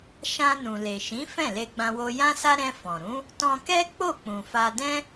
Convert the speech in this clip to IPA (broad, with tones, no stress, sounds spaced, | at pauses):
ʃ ã˧ n ũ˨ l e˨ ʃ ĩ˨˦ f ɛ̃˦˨ l e˧ ɡ͡b ã˧ w o˧ j ã˦ s a˦ ɾ ɛ̃˧ f ɔ̃˨ ɾ ũ˨˦ | t ɔ̃˧ k ɛ˦ k͡p o˦˨ k͡p ũ˨ f a˧ d ɛ̃˦